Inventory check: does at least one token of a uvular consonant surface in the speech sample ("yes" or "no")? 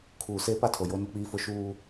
no